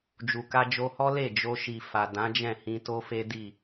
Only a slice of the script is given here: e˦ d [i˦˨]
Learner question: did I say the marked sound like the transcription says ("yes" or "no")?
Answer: yes